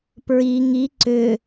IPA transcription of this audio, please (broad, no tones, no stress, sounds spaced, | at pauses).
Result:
p ɹ i ŋ i ǀ ʏ